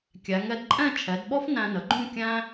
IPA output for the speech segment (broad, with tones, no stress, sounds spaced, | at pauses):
kʲ æ˩˧ ŋ ɛ˩˧ d ǃʼ ɛ̃˥˧ t͡ʃʰ ɛ˩˧ d ɓ ɔ˥ f n æ̃˧ n ə˩˧ ɡ͡ǃ ũ˥˧ kʲ æ̃˥